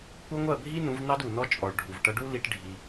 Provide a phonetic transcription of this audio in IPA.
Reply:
kʷʌ˦ ŋʷɜ˦˨bʱi˦nũ˨˦vnɑ˦d u˨nɔ˦t͡ʃʼɔ˨ɭ ɖʱu˨vʈʌ˦ ɖu˦ li˦ʈ ɖʱi˦

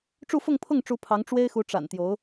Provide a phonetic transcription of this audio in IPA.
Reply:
ʈ͡ʂu˥˧fʊ˥˧ŋpʰʊ˥˩ŋʈ͡ʂu˧˥ pʰɑ˧˥ŋʈ͡ʂwe˥ɪ̯xu˧˥ ʈ͡ʂa̰˨˩n t̪jo˧˥ʊ̯

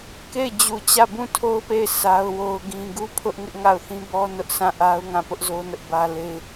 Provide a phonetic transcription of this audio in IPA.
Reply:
ke˦˨ɪ̯ d͡ʑu˦˨ t͡ɕä˦˨bũ˦˨tʰo˦ʊ̯pe˦˨ɪ̯ sa˦ʊ̯wo˦ʊ̯ɡĩ˦ ɡu˦pʰʊ˦ʔ ŋɪ˦ʔŋa˦˨ʊ̯θĩ˦ bɔ˦ nʊ˦ʔsʰã˦˨ ʔa˦ʊ̯ŋã˦˨pʊ˦ʔzo˦ nʊ˦ʔbä˦ le˦ɪ̯

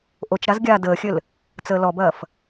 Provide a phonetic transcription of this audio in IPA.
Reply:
ʔot͡ʃɾaz ɡʲaːdəːxʲɘl | t͡səːlɔbɐːf

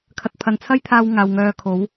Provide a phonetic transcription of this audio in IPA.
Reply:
kʰɐ˨t̚pʰɐ˨nt͡sʰɐ˥jt̪ʰaː˧w ŋaː˨wŋœː˧kʰo˨˥w

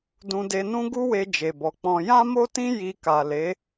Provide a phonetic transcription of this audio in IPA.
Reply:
dũ˧de˧nũ˦ ɡu˦we˧ d͡ʒe˨bɔ˨k͡pɔ̃˧ jã˦mo˦tĩ˦ ji˧ ka˨le˨˦

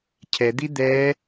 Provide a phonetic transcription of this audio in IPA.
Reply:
cʰɛd̪i d̪ɛ

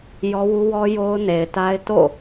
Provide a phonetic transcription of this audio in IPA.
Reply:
jɔ˦wu˦wɔ˦ jo˦ʊ̯ne˨ɪ̯ta˦ɪ̯ to̰˦˨

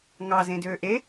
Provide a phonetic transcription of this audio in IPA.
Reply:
ŋɑzẽdøː ʔe

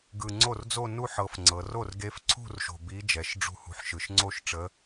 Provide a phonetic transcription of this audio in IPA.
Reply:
ɡɯ˨˩ ŋ͡ǀo˥˩rd͡zo˥˧ nu˥˧ ħɤ˧˥fŋ͡ǀɤ˩˧ ro˥˩rɡe˧˥fǀʰṳ˥˧rʃo̤˨˩ bi˧˥ d͡ʒɛ˩˧ʃɖ͡ʐṳ˥˩hṳ˧˥ħʃɯ˨˩ʃ ŋ͡ǀo˥˧ʃʈ͡ʂə˧˥

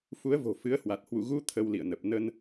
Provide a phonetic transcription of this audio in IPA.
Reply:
fu˨˦ə̯vo̤˨˩ fɨ˨˦ə̯hwa˨˩t̚ hwṵ˧˨ɣu˧ t̪ʰə˧wlḭ˧˨ə̯nə˨˩p̚ nə˧n

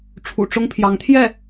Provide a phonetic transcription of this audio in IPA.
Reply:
ʈ͡ʂʰṵ˨˩ʈ͡ʂʊ˥ŋpʰjɑ˧˥ŋ t̪ʰjɛ˥˩

